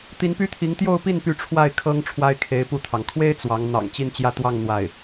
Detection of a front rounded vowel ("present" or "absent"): present